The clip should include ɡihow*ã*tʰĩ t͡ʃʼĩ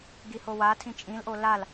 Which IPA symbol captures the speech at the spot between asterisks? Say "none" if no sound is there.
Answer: a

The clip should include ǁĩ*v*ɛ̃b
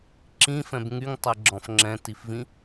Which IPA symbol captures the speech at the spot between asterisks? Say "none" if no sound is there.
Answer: f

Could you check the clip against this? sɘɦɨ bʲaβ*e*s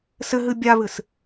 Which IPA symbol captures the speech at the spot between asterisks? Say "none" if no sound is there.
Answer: ɨ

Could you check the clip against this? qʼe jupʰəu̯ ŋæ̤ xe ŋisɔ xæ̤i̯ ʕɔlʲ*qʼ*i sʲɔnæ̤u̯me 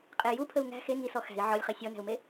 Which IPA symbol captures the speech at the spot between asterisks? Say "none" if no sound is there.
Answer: χ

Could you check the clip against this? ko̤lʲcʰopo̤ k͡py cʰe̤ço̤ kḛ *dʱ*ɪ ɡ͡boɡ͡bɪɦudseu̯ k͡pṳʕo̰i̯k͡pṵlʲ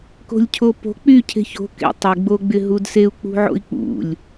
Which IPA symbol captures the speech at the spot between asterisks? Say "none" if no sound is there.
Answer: tˤ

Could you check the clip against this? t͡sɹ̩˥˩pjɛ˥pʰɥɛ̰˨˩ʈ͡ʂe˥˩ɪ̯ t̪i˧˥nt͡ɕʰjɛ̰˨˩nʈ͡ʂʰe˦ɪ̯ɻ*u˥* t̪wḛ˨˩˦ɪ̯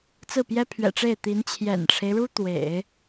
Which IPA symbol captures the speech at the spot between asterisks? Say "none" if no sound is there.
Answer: u˥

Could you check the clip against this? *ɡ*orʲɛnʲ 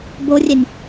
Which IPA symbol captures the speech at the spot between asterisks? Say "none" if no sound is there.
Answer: b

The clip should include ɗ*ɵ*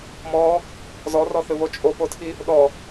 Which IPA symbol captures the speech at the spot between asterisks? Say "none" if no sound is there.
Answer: ɔ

